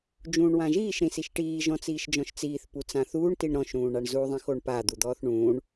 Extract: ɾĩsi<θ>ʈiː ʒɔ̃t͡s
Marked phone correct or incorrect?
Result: incorrect: ʃ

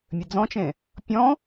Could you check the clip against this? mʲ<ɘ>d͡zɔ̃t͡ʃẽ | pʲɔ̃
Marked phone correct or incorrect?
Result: correct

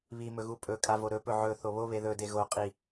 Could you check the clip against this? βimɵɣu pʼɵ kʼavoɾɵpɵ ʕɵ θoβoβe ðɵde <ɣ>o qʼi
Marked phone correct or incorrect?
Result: correct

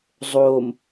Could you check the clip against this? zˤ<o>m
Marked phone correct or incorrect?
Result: correct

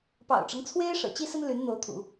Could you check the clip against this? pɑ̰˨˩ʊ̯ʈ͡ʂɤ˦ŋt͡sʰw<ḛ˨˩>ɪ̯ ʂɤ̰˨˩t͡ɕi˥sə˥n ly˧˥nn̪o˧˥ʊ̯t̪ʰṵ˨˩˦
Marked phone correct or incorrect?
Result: incorrect: e˥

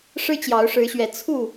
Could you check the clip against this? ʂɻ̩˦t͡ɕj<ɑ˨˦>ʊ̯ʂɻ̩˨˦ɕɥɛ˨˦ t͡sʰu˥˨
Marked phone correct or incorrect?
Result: correct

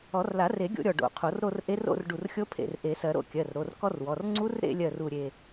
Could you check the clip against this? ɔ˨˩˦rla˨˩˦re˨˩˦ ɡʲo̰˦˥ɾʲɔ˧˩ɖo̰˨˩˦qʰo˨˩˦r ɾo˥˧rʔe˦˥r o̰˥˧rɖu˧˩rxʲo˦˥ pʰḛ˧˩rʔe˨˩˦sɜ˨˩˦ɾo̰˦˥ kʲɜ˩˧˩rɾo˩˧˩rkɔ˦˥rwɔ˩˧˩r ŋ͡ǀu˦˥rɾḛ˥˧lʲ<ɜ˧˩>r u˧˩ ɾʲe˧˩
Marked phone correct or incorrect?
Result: correct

